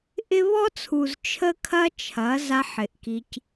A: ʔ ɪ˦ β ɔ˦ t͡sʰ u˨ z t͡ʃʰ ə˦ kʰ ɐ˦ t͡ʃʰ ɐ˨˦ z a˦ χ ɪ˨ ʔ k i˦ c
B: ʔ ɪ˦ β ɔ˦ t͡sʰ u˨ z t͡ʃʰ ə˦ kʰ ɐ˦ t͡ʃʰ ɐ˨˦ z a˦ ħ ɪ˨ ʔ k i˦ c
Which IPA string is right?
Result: B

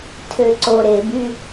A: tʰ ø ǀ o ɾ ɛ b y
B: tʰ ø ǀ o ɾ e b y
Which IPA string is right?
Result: B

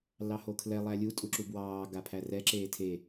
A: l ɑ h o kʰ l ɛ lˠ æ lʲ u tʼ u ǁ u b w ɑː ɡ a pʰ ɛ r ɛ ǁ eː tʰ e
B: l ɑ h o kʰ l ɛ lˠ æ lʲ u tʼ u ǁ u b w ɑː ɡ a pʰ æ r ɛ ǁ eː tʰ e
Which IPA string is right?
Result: B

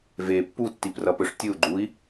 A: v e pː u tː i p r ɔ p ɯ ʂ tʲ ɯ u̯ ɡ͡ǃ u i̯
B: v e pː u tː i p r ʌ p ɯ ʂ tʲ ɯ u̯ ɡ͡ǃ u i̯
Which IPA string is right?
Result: B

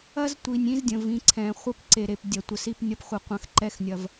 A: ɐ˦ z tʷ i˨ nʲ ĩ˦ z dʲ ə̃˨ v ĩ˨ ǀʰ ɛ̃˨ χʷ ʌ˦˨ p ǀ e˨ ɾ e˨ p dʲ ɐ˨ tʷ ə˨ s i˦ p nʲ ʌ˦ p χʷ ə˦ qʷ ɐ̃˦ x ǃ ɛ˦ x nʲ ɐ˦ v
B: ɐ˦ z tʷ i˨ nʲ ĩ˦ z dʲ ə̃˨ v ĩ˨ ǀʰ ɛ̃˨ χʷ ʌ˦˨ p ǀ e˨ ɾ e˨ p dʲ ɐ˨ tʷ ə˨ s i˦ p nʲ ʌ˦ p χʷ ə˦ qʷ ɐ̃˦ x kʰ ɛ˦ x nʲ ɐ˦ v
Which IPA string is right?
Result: A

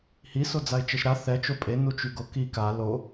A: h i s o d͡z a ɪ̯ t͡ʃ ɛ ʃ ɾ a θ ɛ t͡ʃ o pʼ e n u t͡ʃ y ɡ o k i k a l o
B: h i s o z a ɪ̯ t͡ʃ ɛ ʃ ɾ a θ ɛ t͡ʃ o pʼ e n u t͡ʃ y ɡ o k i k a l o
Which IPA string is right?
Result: A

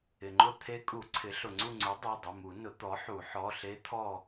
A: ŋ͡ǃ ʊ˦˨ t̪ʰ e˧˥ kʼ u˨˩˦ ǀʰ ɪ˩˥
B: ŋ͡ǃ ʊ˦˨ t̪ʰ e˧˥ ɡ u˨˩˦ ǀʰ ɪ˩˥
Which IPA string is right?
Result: A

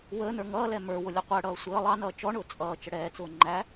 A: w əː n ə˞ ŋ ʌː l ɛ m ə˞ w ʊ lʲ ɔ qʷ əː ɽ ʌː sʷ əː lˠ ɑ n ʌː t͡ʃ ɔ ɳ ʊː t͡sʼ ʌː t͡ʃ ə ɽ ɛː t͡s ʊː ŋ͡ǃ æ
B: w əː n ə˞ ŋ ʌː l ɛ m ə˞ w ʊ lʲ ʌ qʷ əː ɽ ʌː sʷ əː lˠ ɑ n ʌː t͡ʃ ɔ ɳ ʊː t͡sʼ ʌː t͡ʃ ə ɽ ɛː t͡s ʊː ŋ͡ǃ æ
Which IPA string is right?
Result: B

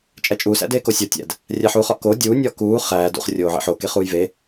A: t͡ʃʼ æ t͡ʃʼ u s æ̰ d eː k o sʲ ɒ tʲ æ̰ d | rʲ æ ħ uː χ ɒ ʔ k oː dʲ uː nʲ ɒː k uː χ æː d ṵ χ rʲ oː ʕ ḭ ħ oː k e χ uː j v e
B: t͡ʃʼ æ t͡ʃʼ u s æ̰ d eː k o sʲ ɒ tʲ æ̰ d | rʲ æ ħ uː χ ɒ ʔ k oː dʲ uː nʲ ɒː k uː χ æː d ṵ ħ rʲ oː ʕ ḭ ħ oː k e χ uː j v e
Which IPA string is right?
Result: A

